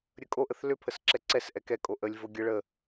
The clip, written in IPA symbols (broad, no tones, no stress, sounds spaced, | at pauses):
ɾʲ ə kʼ o ʔ ə θ l ʏ pʰ ə s ǁ ɛ ǀ ɛ s ʔ ɛ k ɛ kʼ o ʔ ə lʲ v o ɡʲ ə ɭ ə